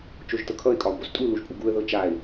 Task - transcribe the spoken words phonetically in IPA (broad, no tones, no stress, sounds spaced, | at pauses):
t͡ʃ o ʒ t ɤ kʰ ʌ ɪ̯ kʼ ɒ ʊ̯ b o s tʼ u l u ʒ pʼ u ɡ u ə̯ ð ɤ t͡ʃ a ɪ̯